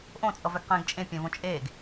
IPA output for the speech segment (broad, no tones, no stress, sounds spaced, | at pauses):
ʔ õ t͡sʼ ʌ v ɛ ɡ q ẽː ɡ t͡ʃʼ ẽ pʲ ɛ̃ v õ t͡ʃʼ eː ɡ